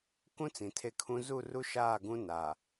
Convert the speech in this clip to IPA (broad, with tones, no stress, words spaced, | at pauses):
kũ˦ t͡sĩ˨tʰe˦˨kʰũ˦ zu˦˨ru˦ʃaː˦˨ ɡũ˦ na˨